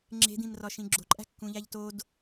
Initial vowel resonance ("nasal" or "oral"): oral